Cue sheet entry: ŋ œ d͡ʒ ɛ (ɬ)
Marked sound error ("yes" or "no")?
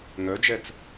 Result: yes